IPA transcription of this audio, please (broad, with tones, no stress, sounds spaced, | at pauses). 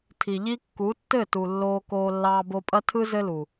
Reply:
tʰ i˨ ʎ i˦ kː u˨˦ tː ɘ˦˨ t u˨ lː oː˧ k oː˧ lː ɑː˧ b o˧ pʼ ɐ˦ tʰ ɯ˦ z ɘ˦ l u˨